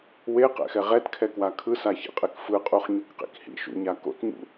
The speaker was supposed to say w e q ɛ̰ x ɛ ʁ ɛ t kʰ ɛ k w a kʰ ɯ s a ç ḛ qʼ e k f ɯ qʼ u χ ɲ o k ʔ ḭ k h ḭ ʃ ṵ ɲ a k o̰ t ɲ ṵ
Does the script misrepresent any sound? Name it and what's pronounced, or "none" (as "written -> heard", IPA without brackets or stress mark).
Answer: ʔ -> q